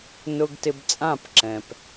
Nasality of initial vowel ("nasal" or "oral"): oral